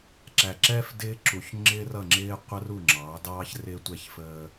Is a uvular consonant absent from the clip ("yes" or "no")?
no